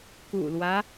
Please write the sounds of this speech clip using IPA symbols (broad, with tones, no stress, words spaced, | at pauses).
kṵ˨˩lwä˦